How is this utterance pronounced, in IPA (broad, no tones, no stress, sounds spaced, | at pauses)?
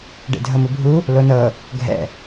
ɖ ḛ dʱ ɤ m u bʱ u | l o n ɤ | ɡʱ ɛ̰